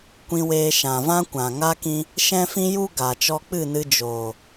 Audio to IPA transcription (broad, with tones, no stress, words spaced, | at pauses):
kʷĩ˧weː˧ ʃã˨vã˦ kʷã˨ŋa˦kĩ˦ | ʃɛ̃˦fĩ˦ju˦ ɡa˨t͡ʃɔ˧k͡pɨ˦˨nɨ˧ d͡ʒoː˨